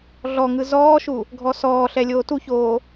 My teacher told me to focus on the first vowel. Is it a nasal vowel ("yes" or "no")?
no